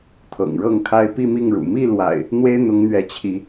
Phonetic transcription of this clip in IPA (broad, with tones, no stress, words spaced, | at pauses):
t̪ʰɤ̰˨˩ŋɻɤ˥˨ŋkʰa˦ɪ̯ pi˥˨mi˥˨ŋɻṵ˨˩ mi˥˨lwa̰˨˩ɪ̯ | n̪we˦ɪ̯ n̪ʊ˨˦ŋ n̪ɥɛ˨˦t͡ɕʰi˨˦